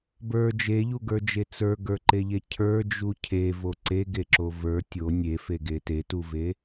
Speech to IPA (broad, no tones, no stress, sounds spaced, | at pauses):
b ə˞ d͡ʒ e ʎ u ɡ ə˞ d͡ʒ e t͡s ə˞ ɡ ə˞ ǃ e ʎ e cʰ ə˞ d͡ʒ u cʰ e v o ǀ e ɡ e ǁ o v ə˞ tʲ o nʲ e f e ɡ e t e t u v e